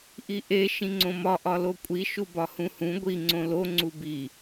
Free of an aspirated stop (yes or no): yes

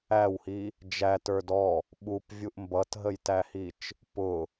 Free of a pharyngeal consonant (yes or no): yes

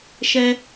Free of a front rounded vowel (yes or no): yes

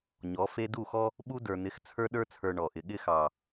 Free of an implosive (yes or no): no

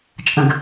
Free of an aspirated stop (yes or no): yes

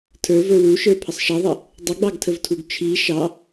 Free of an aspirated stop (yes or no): no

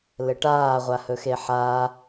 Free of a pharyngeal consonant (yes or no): no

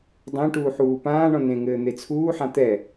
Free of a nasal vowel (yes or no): no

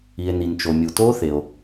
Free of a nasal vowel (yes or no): yes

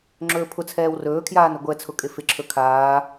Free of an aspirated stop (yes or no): no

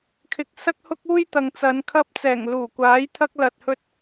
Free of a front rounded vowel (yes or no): yes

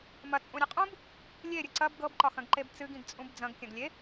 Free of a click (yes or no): no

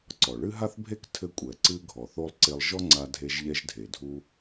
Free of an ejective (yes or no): no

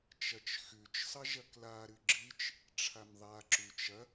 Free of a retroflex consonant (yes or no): no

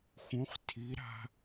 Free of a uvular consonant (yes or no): no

